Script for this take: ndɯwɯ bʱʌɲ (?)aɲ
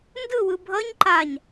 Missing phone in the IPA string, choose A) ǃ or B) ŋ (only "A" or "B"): A